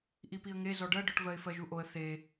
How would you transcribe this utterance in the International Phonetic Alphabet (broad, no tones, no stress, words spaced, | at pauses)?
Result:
ʔipiə̯ŋe zɔɖɜɖɔʈvɜɪ̯ fɜʒuʔoə̯ θe